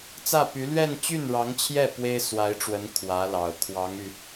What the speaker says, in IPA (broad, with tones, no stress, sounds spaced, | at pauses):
t͡s ä˥˩ p y˧˥ l ɥ ɛ˥˧ n t͡ɕ y˥˩ n ɻ ɑ˧˥ ŋ t͡ɕʰ j ɛ˥˩ p w e˥ ɪ̯ s w a˧˥ ɪ̯ ʈ͡ʂ w ə˧˥ n kʰ w ä˧˥ l ɑ˨˩ ʊ̯ kʰ w ɑ˧˥ ŋ y˧